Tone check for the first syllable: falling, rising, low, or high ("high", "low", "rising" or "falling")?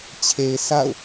low